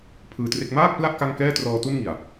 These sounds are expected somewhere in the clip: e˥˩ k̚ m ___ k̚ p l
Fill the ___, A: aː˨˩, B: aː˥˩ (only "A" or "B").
B